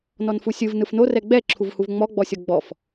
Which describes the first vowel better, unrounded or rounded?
rounded